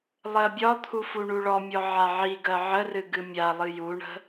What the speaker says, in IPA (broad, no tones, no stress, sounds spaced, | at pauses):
lˠ ɜ bʲ ɒ t̪ʰ u f u ɳ u ɭ ɔ mʲ ɔ ʕ a ʕ i ɡ ɜ ʕ ə r ɨ ɡ ɨ mʲ a lˠ ɨ j u ɳ ə̤